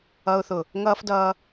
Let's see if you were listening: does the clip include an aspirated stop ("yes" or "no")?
no